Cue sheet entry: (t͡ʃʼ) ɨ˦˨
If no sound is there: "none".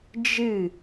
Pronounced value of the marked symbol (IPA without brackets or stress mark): d͡ʒ